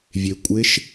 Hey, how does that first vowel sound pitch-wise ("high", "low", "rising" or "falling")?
low